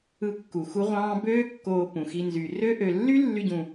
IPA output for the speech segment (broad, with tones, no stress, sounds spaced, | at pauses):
ɯ˦ kː u˨ x u˧ ʁʷ ɑ̃ː˧ b øː˦ kː oː˧ p ũ˨ x i˧ n z y˨ r ø˦ ʔ ø˨ lː y˦ lː y˦ ɟ ũ˧